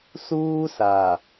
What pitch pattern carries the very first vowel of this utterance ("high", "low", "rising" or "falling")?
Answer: high